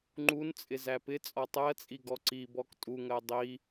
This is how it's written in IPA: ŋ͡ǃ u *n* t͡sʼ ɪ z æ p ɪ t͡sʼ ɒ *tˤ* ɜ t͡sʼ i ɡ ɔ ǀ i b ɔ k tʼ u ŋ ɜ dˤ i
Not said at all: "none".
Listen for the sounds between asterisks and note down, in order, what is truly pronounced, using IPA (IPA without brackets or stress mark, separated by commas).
n, tˤ